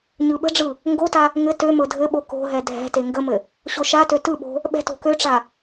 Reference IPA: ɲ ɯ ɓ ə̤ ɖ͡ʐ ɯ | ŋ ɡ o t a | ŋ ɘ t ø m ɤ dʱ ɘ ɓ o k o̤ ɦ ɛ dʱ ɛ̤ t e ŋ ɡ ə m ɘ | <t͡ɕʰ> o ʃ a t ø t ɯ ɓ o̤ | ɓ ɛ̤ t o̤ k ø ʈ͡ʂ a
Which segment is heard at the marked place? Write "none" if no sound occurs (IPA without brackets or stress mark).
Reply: ɕ